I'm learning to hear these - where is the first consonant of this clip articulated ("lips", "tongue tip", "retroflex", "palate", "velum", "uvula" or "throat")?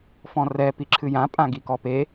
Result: lips